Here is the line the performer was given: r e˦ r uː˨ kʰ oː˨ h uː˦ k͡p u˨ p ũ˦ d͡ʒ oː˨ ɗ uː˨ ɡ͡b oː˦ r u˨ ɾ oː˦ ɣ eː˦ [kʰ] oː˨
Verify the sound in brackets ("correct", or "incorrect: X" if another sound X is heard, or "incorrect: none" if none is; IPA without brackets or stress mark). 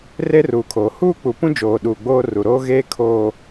correct